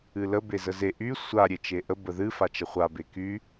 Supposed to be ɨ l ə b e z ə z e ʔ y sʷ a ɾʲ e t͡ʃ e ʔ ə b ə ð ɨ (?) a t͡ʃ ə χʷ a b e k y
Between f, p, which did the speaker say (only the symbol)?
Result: f